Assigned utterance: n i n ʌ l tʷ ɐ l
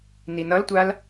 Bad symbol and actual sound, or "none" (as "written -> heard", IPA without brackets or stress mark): ɐ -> a